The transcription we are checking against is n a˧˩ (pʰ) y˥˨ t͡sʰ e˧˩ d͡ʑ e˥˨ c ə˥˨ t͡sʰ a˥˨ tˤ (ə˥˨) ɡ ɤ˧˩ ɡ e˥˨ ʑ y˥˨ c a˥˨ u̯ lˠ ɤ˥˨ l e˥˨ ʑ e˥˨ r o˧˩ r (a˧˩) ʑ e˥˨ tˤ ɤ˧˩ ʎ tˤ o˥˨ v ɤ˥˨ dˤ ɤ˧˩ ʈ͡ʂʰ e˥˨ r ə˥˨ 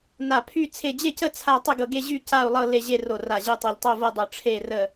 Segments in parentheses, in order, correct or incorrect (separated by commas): correct, correct, correct